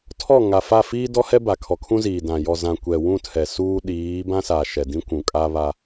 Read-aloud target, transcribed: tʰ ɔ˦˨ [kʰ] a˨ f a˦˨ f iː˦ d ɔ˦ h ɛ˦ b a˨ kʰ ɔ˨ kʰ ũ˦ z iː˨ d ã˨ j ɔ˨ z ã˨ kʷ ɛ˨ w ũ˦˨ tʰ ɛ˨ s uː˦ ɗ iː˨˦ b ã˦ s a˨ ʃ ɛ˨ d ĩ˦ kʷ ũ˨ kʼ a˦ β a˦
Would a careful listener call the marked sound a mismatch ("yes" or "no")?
yes